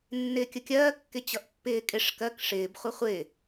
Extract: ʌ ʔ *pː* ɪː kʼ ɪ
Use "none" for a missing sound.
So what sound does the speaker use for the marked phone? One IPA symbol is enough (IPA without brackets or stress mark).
pː